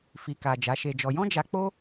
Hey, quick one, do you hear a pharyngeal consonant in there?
no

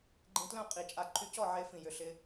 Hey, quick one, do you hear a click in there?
yes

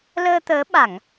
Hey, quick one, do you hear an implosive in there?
yes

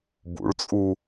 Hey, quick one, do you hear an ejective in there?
yes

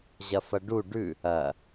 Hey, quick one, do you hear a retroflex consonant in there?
yes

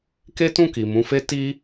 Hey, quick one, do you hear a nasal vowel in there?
yes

